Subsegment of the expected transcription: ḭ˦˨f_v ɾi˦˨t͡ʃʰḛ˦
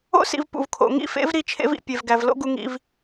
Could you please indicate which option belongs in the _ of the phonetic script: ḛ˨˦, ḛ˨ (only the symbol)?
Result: ḛ˨˦